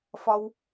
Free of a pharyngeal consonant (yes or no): yes